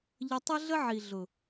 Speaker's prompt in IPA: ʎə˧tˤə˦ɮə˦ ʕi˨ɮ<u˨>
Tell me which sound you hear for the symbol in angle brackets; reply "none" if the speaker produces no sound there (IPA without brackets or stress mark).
ʊ˨